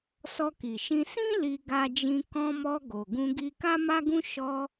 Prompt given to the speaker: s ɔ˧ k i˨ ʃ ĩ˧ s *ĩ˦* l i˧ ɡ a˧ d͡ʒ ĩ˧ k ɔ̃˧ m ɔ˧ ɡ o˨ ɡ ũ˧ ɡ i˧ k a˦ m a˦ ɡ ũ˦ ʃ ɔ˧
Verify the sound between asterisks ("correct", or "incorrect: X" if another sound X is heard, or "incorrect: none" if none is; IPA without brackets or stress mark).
correct